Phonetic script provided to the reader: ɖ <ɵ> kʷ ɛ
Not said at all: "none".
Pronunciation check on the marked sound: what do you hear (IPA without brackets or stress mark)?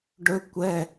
ɵ